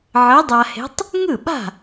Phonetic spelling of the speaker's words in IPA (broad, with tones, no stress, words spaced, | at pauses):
ʕə˧˥dˤa˧he̤˧˥tˤ | ŋɯ˥˩ɓa̤˥˩